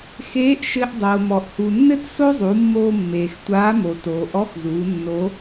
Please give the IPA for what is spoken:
xeː˧˥ʔ ʃɘ˧ʔ dˤoː˩mɔ˩ʔ hu˩nːɘ˥t so˥zˤu˩˧mːoː˧ mːeː˩xtʷaː˧˥mo˩ toː˩ʔɔ˧˥xzuː˩˧ nːo˧˥

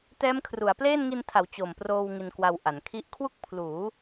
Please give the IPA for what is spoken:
tɛː˦˥mkʰru˩˦a̯pleː˥˩n ŋi˧ntʰa˩˦w t͡ɕo˨˩mproː˧w ŋi˧nkwa˧wʔa˩˦nkʰi˥˩ʔ kʰwu˥˩k̚pʰluː˩˦

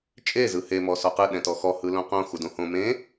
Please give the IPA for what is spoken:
t͡ʃʼe zɯhe mɔsɔqɯ ɗɛ̃tɔxɔ hɯlõqõ xudõhõ mẽ

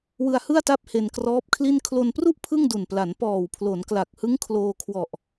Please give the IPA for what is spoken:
wɯ˧a̯hɯ˥˩a̯ta˦˥p̚ he˧nkrɔː˦˥p̚kʰli˥˩n kʰlo˧npru˥˩ʔ pʰɯ˥˩ŋdu˨˩npla˩˦n pɔː˨˩wpʰlo˩˦nkla˨˩k̚hɯ˦˥ŋ kʰloː˧kʰwɔ˨˩ʔ

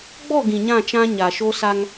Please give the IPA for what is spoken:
ɡ͡bɔ˦˨ ɡĩ˨ɲã˦˨ t͡ʃã˦ɲa˨ ʃo˦sa˦ŋ

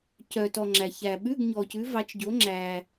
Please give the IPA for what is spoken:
cœ˨tɔ˨ ŋ͡ǁæ˨ çæ˨ ɓʉ˧˥˧ɡɲɔ˨ cʉ˨˦vɑ˨˦t͡ʃɟo˨˦ ŋ͡ǁæ˨

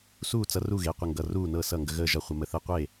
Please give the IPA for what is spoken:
suː˥˨t͡sʌ˦ru˥˨ɣe˩˧˩ qʷə˥˨ŋɡʌ˩˧˩ruː˥˨nɤ˥˨ sʌ˥˨ŋɡə˦ɣəː˥˨ʒʌ˥˨ χʷə˦mə˦ θəː˦qʷe˥˨

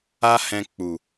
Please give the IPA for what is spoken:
a˦hɛ̃˧ k͡pu˨

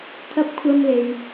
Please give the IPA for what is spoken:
t̪ʰɐ˧p̚kʷʰɐ˧mle˨j

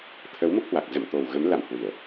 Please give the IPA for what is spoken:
t̪ʰə˨˦wmo˦˥k̚hwa˨˩k̚ zə̰˧˨m t̪o˨˩wɣə˨˦mla̰˧˨m hwi˧˩˨ə̯

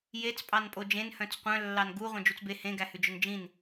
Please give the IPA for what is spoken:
jet͡s pʼɑnpʼod͡ʒẽn hœ̃t͡sqʷœ̃lːɑn ɡu ʁʷœ̃d͡ʒut͡sbe hẽɡæhʉd͡ʒœn d͡ʒĩn

